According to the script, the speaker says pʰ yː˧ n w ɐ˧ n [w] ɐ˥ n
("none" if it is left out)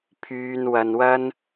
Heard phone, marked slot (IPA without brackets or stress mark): w